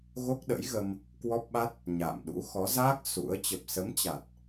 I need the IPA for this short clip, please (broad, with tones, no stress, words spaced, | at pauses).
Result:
ɣo˦˥k̚ɗə̰˧˥jɣə˧m | kwɔ˦˥p̚ɓa˦˥t̚ | ɲa̰ː˧˨mɗṵ˧˥ xɔ˨˦zaː˦˥k̚ sṵ˧˥ə̯ t͡ɕə˨˩p̚sə˨˦m t͡ɕa˨˩t̚